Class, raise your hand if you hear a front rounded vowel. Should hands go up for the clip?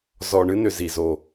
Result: yes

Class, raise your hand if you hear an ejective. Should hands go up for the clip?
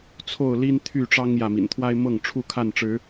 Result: no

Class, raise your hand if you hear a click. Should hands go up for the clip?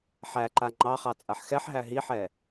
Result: yes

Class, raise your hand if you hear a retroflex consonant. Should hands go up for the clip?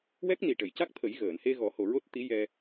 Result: yes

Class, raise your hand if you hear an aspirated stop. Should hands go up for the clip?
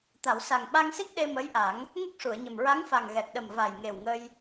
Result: no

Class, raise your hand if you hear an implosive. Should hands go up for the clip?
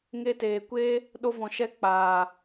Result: yes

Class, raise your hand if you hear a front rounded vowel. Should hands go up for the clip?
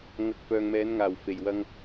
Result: yes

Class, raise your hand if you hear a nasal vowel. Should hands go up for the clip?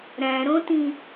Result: yes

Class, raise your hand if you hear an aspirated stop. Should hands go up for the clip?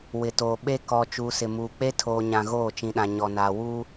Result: yes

